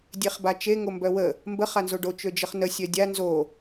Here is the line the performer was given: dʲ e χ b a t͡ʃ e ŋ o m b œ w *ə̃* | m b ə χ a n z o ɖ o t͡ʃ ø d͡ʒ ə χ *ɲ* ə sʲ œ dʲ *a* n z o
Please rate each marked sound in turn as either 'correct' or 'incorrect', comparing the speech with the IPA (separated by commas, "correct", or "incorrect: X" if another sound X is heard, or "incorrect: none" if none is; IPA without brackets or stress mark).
incorrect: ə, incorrect: n, correct